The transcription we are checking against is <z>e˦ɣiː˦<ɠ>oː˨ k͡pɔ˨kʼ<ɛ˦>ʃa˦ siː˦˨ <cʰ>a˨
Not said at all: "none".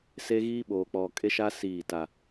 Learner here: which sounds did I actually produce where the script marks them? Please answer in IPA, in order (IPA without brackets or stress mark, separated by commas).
s, ɓ, e˦, t